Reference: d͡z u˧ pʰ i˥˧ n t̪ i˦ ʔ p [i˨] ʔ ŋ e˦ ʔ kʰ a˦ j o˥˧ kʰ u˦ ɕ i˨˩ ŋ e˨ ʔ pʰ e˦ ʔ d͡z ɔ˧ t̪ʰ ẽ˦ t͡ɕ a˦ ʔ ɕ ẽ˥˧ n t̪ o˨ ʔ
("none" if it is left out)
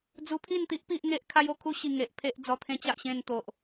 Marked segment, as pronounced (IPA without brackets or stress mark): i˦